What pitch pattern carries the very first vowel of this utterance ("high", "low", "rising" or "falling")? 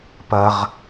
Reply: high